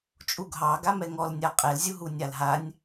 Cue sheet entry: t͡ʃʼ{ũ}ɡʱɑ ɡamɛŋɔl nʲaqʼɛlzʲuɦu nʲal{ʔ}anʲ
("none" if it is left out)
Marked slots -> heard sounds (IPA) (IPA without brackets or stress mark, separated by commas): u, ɦ